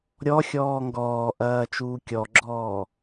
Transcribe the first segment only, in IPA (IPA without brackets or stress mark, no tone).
ɾʲ